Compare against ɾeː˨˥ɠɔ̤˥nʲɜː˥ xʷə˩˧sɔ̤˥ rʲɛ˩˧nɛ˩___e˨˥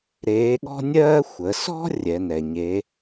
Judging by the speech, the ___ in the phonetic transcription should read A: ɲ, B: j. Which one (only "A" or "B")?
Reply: A